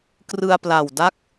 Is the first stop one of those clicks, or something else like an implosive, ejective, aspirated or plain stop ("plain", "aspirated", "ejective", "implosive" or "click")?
plain